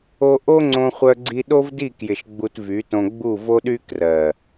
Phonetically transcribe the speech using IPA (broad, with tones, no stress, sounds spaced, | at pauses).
o˧ ʔ o˦ ŋ͡ǀ õ˧ χʷ œ˧ ɡ͡ǀ i˧ ɗ o˦ v d i˦˨ k j ɪ˨ ʃ ɡ͡b u˧ t v y˨˦ t õ˧ ɡ͡b u˦˨ v o˦ ɗ y˦ k r ɜ˨